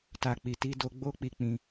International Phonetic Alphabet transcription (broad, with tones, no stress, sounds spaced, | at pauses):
t a˨ k͡p i˨ t i˧ d o˧ ɡ͡b o˦ k͡p i˧ k͡p ĩ˧